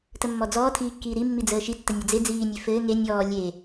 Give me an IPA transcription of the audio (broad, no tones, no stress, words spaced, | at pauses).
təmːɔd͡zɔː tʰiːkːiːɾimːi d͡zəːʃitːə nʲed͡ze d͡ziːnʲe fɘː ŋe nʲɔː lʲe